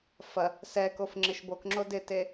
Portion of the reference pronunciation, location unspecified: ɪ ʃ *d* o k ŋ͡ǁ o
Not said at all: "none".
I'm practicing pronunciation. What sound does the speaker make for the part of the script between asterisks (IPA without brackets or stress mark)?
b